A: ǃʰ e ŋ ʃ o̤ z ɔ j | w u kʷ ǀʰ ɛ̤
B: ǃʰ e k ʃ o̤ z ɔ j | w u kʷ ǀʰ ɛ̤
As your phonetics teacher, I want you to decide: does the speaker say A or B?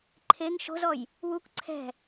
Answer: A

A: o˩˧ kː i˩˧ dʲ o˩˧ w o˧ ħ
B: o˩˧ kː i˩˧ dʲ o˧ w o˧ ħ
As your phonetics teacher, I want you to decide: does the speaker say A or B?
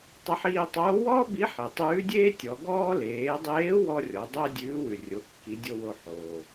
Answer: B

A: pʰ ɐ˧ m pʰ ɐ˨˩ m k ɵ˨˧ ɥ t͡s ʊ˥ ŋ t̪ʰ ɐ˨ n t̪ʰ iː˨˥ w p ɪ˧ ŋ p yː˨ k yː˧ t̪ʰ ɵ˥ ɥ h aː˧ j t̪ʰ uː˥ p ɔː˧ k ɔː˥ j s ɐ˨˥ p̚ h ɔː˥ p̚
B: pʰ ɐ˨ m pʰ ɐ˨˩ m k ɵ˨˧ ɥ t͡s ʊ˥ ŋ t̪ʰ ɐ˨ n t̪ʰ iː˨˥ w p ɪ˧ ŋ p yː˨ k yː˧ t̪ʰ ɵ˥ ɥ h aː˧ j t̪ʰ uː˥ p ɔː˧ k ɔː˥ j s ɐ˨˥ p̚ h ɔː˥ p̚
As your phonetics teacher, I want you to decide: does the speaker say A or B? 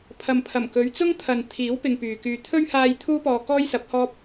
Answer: B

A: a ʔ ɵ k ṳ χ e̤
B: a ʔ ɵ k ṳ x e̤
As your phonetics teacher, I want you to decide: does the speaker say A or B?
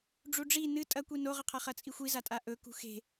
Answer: B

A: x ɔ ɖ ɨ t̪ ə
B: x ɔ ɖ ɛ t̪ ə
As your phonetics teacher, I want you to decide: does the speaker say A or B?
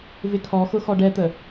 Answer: B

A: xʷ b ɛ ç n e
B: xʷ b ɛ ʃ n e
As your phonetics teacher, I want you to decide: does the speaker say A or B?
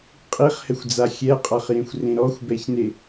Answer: A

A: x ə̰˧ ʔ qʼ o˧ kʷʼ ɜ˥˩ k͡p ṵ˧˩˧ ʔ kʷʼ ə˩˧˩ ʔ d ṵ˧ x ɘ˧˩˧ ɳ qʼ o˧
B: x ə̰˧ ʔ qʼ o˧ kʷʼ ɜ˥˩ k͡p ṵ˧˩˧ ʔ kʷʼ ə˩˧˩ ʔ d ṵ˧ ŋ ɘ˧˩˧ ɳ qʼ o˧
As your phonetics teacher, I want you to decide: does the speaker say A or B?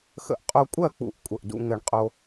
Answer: B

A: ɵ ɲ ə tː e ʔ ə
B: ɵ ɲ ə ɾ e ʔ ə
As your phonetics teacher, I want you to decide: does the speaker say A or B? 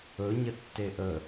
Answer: A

